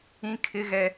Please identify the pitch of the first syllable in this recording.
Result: high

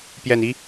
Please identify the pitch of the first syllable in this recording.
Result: low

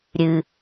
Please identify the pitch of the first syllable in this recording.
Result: low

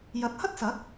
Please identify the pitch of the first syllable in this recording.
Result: rising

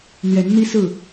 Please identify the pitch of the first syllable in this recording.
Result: rising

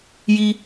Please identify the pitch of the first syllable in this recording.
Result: high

